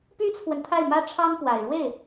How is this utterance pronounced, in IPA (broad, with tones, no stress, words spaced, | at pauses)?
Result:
py˥t͡sʰwə˨n t̪ʰa˥˩ɪ̯mä˥ʈ͡ʂʰɑ˥ŋpwa˨˩ɪ̯ ɻwe˥˩ɪ̯